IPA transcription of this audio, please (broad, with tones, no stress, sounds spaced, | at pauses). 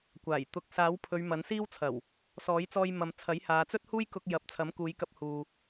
kʷ aː˨˩ j t̪ ʊ˨ k̚ s aː˨˥ w pʰ ɵ˨˧ ɥ m ɐ˨˥ n s iː˥ w t͡sʰ ɐ˨˩ w | s ɔː˨˥ j t͡s ɔː˧ j m ɐ˨ m t͡sʰ ɐ˨˥ j h aː˨˧ t͡s ɵ˥ t̚ h uː˥ j k ʊ˧ k̚ j ɐ˨ p̚ t͡sʰ ɐ˨˥ m k uː˨˧ j k ɐ˧ p̚ h uː˨